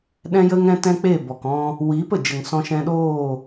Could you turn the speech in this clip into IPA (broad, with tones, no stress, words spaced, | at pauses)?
ɗɛ̃˦jə˦ŋ ɛ̃˦tɛ̃˦k͡pe˦˨ bɔ˨kɔ̃˧ | wiː˨˦pə˨d͡ʒə˨ŋ sɔ̃˧ʃɛ̃˧ɗoː˦˨